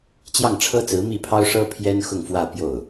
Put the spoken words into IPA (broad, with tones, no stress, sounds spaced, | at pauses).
t͡ɕ j ɑ˥˩ ŋ ʈ͡ʂʰ ɤ˥ t͡s ɹ̩˧˥ m i˥˩ pʰ ɑ˥ ʊ̯ ʂ ɤ˥ pʰ j ɛ˥ n x ʊ˥˧ ŋ f w ä˥˧ p j o˥˩ ʊ̯